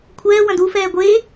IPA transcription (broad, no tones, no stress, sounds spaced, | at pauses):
kʷʰ ɛː w ɐ̃ d u f ɛː ɡʷ e